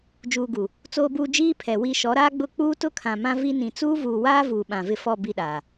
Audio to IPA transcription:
d͡ʒ uː˨ ɡ u˨ | t͡s oː˨ b uː˨ d͡ʒ iː˦ pʰ ɛ˨ w i˨ ʃ ɔ˨˦ ɾ aː˦ ɡ͡b ʊ˦˨ k͡p uː˦ t ʊ˦ kʰ ã˨ m ã˦ v i˦ n ĩ˨ t͡s uː˦ v uː˨ w aː˦ v uː˨ ɓ ã˨ v ɪ˦ f ɔ˦˨ b i˦˨ ɗ aː˨

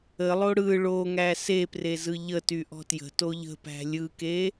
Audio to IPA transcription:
ə lˠ o ɽ ɯ ɭ o ŋ æ s e p r e z ɯ ʎ ə t y ʔ ɔ̤ t j ə̤ t o ʎ ə̤ p æ̤ lʲ ɯ k e

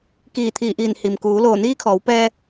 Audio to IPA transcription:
k iː˧˩ t̪ʰ iː˧˩ ʔ iː˧˩ n h i˩ m k uː˩˧ l oː˧˩ n iː˧˥ kʰ ɔː˩˧ w p ɛː˧

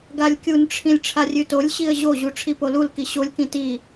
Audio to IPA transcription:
ɡ a lʲ kʲ u n ʈ͡ʂʰ ĩ lʲ ʈ͡ʂʰ a rʲ ʉ t o lʲ ɕ i ə̯ ʑ o ʑ u ʈ͡ʂʰ i p o l u l k i ɕ o lʲ k ĩ t i

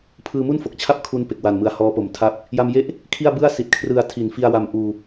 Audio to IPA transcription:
pʰ ɯː˧ m u˥˩ n f o˨˩ k̚ t͡ɕʰ a˥˩ p̚ kʰ u˦˥ n p e˨˩ k̚ w a˨˩ n m ɯ˨˩ a̯ h ɔː˦˥ p o˨˩ m tʰ a˥˩ p̚ | j a˧ m j e˥˩ ʔ | kʰ i˥˩ a̯ b ɯ˥˩ a̯ s i˨˩ t̚ kʰ r ɯ˧ a̯ tʰ i˨˩ n f i˧ a̯ w a˧ m ʔ uː˧

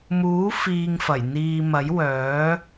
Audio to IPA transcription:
m uː˨˥ f iː˧ ŋ f ɐ˨˩ j n̪ iː˧ m ɐ˨˥ j w œː˨˥

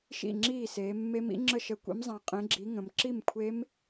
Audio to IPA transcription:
ʃ ḭ˥˩ ŋ͡ǁ iː˥˩ s eː˩˧ mː e˦˥ m ḭ˦˥ ŋ͡ǁ ə˥˩ ʃ ə˨˥ kʷ ḭ˨˥ m zˤ ã˨˥ qʼ ẽ˨˥ ɡ͡ǁ i˨˥ ŋ ə̃˩˧ m ǁ i˥˩ m kʷʰ e˦˥ m

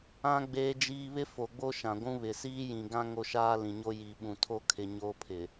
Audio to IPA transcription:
ã˦ ɡ͡b eː˦ d͡ʒ iː˦ β ɪ˦ f o˨ ɡ͡b o˦ ʃ ã˨ ɡʷ ũ˦ β ɪ˨ s iː˦ j ĩ˨ ɡ ã˦ ŋ o˦ ʃ aː˦ l ĩ˨ ɲ o˦ j i˨ ɓ ũ˨ tʰ o˦ kʰ ɪ˨ ɲ oː˦ pʰ ɪ˨

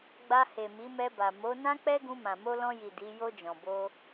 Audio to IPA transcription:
ɡ͡b a˧ h e˨ m i˨˦ m ɛ˧ b a˨ m o˨˦ n ã˦ k͡p ɛ˦ ɡ ũ˧ m ã˨ m o˧ l ɔ̃˧ j i˨ d i˨˦ j o˧ d͡ʒ ɔ̃˨ b o˧

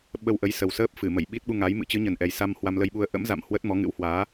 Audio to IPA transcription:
ɓ ə˧ w ʔ ə˨˦ j s ə˨˩ w s əː˦˥ p̚ f ɨ˧˩ m ə˧˩ j ɓ i˦˥ t̚ ɓ u˧ ŋ a˨˦ j m ɨ̰˧˥ t͡ɕ ɨ˨˦ ɲ ə˨˩ n ʔ ɛ˨˩ j s a˧ m h w a˧ m l ə˧ j ɓ u˧ ə̯ ʔ ə̰˧˥ m z a̰˧˨ m h w ə˦˥ t̚ m ɔ˨˦ ŋ ɨ̰˧˥ w h w aː˨˦

